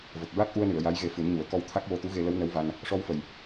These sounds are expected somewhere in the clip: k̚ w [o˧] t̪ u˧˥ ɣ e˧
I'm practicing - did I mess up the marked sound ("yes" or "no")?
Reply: no